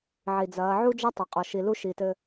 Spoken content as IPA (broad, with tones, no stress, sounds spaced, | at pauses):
ʕ i˨ d͡z ɐː˨˦ ʕ u˦ d͡ʒ ɐ˦ tˤ ɐ˨ qʼ ɔ˨ ʃ i˨ l u˦ ʃ i˨ t ɘ˦